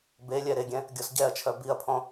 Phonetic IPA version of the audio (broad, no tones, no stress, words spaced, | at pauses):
belʲɛ ɾeɡʲɛ̃ | ɡʲɔsɟɛɐ̯t͡ʃʰœ biɐ̯pʰɔ̃